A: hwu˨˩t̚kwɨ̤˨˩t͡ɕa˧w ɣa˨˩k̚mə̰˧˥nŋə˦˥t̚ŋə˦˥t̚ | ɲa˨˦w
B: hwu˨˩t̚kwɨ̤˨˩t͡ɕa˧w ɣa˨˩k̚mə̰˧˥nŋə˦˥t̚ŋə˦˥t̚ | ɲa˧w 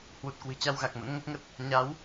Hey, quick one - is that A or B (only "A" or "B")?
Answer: A